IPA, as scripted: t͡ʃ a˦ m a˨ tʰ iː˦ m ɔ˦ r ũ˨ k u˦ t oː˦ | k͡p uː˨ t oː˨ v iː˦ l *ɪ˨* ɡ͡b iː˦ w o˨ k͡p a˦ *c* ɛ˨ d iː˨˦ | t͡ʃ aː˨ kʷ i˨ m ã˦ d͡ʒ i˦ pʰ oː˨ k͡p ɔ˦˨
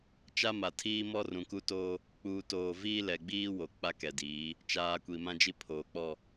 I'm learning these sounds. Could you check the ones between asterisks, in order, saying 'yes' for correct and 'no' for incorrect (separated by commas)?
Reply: no, no